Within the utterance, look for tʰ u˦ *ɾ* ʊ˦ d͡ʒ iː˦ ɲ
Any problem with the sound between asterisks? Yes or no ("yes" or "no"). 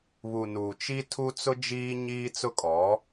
yes